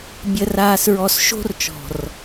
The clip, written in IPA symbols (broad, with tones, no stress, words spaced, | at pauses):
bʲə˨raː˨sɹɔ˨s ʃo̤˦rt͡ʃɔ̤˨r